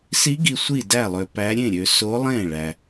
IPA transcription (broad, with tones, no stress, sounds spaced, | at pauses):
s i˧˥ ɡ i˨ sʷ i˥˩ d æ˥˩ lˠ ø˨ p æ˧˥ ɾʲ ẽ˥˩ ɾʲ ø˨ s o˧˥ lˠ ẽ˥˩ ɭ æ˨